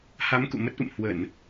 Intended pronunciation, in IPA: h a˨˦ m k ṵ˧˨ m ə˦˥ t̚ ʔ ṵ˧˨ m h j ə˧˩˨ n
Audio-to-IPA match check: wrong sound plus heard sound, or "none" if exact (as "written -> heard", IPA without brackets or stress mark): j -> w